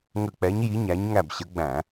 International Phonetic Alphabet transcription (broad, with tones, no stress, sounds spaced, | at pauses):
ŋ ə˧˩ k͡p ɛ˨˦ ɲ j i˨˦ ɲ æ˨˦ ɲ ŋ æ˧˩ b ɕ ə˨˦ ɡ͡b æ̃˧˩˧